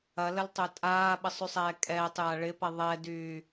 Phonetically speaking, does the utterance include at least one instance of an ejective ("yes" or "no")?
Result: yes